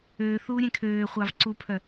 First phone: øː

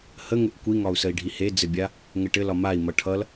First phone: h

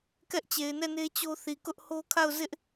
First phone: k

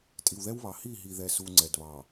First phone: tʼ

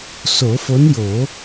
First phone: s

